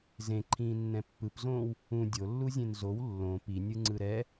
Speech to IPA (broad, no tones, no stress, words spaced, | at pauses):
zẽǃʰĩːnːɛ̃ pːɯpzõːw | ũ dʲolːuzʲẽn zow lːõ pinʲɯŋ͡ǀɯ ɾɛ